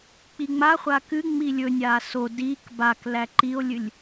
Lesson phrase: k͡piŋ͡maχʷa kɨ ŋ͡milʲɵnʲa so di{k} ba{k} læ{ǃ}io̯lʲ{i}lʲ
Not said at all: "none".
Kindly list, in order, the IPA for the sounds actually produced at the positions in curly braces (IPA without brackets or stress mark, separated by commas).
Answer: k, k, ǃ, ɨ